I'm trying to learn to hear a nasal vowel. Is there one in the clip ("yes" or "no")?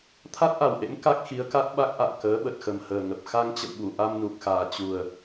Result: no